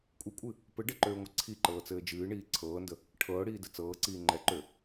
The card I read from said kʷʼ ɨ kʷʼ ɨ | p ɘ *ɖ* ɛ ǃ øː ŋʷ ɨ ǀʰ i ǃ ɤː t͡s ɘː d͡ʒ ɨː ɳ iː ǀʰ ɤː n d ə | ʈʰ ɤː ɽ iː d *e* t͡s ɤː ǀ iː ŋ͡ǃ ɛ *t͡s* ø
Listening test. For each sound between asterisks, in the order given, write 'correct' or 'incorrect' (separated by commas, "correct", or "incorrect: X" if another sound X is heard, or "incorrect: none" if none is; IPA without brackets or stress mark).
correct, incorrect: ɘ, incorrect: ǃ